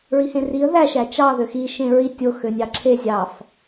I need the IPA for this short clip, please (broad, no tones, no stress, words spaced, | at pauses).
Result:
ɹihẽriə̯ ðæ ʃæt͡ʃɑ ðøxi ʃẽɹi tʲo xønʲɑǁʰe zʲɑf